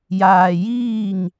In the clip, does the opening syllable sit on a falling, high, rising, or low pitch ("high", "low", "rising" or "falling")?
low